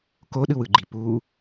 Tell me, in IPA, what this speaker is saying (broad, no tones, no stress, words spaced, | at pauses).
koɗɯwɯɡ͡ǃi pu